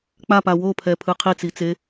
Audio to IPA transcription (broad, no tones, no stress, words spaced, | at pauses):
k͡papa wopʰɛpʰɯ qʰit͡sit͡se